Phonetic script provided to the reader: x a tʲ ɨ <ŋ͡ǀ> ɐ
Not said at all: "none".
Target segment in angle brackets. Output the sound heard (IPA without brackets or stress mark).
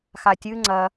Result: ŋ͡ǀ